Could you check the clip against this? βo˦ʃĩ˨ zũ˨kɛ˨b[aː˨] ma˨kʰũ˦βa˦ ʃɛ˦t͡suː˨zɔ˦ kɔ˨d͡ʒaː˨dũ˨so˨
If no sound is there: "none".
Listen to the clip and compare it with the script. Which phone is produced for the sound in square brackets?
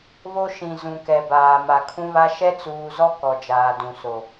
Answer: aː˨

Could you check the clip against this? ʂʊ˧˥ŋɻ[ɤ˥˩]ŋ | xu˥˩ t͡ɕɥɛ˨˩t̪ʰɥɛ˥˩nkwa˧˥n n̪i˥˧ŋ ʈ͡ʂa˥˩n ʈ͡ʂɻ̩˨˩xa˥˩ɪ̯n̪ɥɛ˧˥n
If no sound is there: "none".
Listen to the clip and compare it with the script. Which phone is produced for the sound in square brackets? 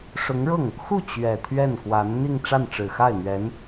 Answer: ɤ˥˩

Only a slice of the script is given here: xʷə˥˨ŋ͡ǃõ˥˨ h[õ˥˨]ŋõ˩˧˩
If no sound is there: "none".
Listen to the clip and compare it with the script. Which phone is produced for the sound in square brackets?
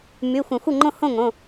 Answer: õ˥˨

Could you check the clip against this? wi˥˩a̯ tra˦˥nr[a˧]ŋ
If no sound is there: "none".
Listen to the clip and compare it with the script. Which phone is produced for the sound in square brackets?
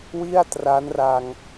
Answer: a˧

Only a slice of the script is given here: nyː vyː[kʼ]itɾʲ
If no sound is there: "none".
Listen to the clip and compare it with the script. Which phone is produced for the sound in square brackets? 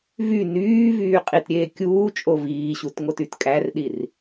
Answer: qʼ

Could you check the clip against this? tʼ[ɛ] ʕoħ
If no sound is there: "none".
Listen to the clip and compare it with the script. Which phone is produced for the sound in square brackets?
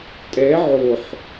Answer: ɛ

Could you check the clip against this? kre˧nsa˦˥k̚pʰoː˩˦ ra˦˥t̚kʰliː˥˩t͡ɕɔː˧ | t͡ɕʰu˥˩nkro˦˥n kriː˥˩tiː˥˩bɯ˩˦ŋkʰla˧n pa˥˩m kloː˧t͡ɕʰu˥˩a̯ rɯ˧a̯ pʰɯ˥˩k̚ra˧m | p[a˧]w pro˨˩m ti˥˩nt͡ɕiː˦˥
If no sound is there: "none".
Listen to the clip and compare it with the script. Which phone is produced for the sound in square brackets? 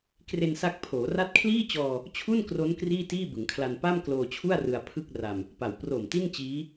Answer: a˨˩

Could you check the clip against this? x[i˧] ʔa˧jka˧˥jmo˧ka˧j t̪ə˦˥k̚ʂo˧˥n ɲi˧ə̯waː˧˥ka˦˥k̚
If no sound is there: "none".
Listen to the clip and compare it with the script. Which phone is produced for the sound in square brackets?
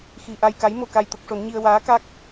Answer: i˧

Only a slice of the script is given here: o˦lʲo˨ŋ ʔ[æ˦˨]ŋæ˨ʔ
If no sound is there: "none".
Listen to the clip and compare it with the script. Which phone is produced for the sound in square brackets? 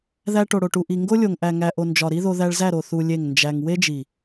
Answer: æ˨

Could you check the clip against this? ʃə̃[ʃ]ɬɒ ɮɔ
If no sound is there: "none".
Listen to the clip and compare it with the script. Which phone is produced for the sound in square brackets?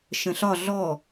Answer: none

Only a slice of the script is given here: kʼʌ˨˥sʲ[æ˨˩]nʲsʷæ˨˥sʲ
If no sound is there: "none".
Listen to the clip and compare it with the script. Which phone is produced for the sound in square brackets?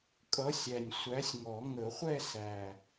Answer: æ˨˩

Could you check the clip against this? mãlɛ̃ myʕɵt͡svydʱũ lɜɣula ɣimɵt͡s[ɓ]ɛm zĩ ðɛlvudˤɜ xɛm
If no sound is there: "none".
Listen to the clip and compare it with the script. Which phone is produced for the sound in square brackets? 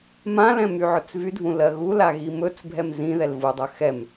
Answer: bʱ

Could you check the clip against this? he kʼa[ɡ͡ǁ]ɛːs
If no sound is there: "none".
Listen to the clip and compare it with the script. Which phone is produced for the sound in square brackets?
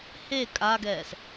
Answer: ɡ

